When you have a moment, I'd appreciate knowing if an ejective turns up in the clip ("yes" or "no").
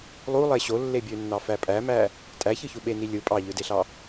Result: yes